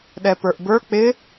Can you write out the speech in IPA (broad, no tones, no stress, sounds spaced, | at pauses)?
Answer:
ɗ ɛ p ə˞ ʔ b ə˞ k͡p ɪ